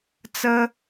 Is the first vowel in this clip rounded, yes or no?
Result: no